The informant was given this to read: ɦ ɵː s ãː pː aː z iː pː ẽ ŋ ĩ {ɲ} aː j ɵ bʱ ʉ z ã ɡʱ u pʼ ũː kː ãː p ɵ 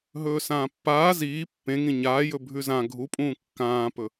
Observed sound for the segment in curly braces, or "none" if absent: ɲ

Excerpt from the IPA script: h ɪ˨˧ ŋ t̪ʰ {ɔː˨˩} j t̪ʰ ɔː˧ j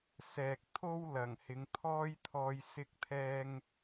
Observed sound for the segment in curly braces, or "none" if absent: ɔː˥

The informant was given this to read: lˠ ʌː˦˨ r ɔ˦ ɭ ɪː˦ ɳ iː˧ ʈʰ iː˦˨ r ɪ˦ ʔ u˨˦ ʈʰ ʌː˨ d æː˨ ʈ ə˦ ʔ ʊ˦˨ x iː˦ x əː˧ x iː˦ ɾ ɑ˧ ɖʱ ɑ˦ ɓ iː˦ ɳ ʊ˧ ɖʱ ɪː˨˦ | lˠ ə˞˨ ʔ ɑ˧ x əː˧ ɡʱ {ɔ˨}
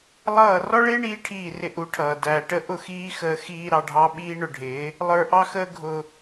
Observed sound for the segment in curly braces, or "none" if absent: ʊ˨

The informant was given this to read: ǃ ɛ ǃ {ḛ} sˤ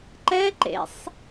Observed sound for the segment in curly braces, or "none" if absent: ḛ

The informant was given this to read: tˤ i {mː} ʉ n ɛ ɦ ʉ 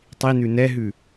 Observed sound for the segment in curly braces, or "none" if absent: n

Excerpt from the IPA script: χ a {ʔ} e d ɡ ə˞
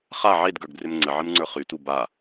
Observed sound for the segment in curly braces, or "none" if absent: ʕ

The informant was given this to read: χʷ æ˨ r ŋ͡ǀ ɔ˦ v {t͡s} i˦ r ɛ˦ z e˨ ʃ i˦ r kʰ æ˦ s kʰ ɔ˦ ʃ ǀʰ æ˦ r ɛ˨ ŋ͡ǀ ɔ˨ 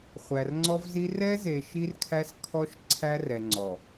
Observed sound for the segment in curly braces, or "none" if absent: z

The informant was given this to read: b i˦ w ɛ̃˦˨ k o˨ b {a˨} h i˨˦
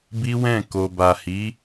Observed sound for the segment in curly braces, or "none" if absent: a˨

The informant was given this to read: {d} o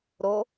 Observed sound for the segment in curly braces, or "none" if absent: ɾ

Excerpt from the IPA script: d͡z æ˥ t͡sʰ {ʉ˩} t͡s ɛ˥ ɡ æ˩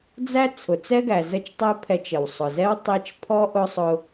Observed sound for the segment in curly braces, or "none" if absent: ʊ˩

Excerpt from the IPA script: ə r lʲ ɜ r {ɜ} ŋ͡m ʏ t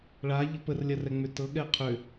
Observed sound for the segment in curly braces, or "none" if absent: ɛ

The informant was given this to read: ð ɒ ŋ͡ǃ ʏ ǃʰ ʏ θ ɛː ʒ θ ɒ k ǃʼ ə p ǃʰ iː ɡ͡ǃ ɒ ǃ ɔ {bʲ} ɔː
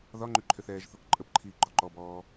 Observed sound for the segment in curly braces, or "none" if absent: b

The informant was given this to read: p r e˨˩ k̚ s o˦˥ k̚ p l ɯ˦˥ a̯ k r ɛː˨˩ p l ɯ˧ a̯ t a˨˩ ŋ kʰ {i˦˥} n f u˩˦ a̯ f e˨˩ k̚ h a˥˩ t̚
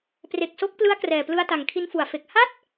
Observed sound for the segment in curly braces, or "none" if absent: i˧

